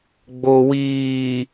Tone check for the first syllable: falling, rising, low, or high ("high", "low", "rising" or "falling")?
low